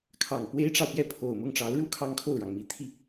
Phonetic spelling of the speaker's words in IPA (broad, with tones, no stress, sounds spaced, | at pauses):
kʰ ɑ˨˩ ŋ p w e˥ ɪ̯ ʈ͡ʂ ɑ˨ ʊ̯ p j ɛ˥˩ pʰ o˨˩ ʊ̯ m ʊ˥˩ ŋ ʈ͡ʂ ɑ˧˥ ʊ̯ ɻ u˥˩ kʰ ɑ˥ ŋ kʰ o˥˩ ʊ̯ ɻ ɑ˩ ŋ m i˧˥ t̪ʰ i˧